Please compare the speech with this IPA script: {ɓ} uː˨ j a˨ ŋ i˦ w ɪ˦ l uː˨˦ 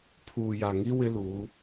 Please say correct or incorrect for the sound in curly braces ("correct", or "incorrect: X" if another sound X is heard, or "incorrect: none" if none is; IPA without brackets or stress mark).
incorrect: pʰ